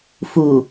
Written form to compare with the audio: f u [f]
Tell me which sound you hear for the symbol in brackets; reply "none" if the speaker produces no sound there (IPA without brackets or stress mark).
none